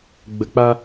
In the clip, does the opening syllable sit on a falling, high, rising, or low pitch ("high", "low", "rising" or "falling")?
low